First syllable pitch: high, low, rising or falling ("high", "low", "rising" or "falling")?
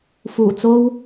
low